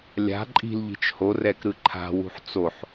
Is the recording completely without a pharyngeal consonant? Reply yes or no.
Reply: no